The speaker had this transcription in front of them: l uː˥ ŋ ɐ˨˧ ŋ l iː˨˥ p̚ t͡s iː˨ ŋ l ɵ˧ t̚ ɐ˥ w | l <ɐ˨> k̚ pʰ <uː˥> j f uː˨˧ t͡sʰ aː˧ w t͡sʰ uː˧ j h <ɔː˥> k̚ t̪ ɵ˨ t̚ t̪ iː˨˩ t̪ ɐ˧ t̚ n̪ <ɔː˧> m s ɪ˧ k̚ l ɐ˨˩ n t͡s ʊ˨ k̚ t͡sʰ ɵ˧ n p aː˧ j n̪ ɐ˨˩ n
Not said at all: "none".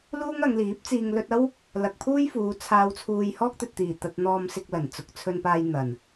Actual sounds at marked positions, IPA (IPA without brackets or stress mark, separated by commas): ɐ˨, uː˥, ɔː˥, ɔː˧